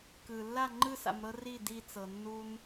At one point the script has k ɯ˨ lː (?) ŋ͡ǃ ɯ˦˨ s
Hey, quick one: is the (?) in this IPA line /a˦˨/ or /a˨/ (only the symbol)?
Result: a˦˨